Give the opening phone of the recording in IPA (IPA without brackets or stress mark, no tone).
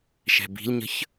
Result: ʃ